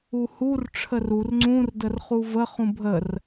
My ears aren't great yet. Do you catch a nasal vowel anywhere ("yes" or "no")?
yes